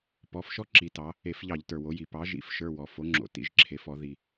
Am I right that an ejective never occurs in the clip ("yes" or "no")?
yes